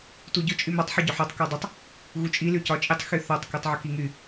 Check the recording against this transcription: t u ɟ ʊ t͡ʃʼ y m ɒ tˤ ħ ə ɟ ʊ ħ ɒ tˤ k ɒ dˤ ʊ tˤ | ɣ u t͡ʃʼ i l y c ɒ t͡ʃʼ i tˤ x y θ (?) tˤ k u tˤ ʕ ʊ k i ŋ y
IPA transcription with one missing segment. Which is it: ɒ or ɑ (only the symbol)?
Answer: ɒ